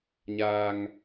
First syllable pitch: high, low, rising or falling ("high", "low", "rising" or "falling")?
high